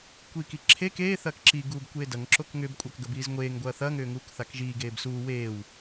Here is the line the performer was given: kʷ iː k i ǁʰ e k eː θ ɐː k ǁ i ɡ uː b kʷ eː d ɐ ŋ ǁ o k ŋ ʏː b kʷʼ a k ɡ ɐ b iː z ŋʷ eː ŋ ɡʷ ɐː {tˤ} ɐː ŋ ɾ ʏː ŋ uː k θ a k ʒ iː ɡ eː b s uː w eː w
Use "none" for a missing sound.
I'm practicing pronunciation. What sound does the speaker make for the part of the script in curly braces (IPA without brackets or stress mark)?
θ